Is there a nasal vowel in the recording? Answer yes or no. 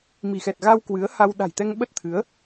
no